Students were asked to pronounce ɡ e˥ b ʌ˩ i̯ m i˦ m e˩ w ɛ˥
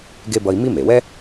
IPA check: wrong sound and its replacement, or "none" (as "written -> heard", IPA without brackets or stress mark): ʌ˩ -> ʌ˦